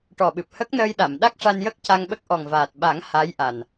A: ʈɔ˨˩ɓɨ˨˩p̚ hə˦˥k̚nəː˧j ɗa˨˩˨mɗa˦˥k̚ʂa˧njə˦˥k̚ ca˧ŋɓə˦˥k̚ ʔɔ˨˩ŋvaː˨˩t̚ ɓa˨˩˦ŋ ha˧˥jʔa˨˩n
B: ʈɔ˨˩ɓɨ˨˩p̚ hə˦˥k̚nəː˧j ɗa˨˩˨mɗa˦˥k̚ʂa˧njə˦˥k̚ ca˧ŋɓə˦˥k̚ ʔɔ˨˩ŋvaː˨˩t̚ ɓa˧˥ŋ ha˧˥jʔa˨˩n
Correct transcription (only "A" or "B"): A